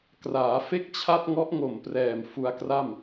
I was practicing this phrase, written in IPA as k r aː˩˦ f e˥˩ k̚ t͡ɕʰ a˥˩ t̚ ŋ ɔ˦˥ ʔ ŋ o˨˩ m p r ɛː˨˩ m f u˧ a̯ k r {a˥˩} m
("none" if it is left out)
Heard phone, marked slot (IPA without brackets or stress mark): a˥˩